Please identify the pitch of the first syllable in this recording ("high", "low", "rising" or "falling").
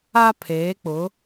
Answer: high